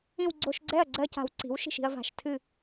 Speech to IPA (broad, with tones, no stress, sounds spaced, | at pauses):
ĩ˥˧ w ɡ͡ǀ o˧˩˧ ʃ ɡ͡ǀ ɛ˥˩ ɐ̯ ɡ͡ǀ ɜ˥˧ c a̤˧˩˧ w ǀ i̤˩˥ w ʃ i̤˥˩ ʃ i̤˥˧ ɐ̯ v a̤˧˩˧ ʃ tʰ ɨ˥˩